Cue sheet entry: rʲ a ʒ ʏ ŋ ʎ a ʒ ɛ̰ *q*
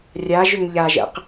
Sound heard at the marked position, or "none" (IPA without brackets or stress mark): q